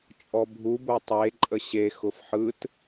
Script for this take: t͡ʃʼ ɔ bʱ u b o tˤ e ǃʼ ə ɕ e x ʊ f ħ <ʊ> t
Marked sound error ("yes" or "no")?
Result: yes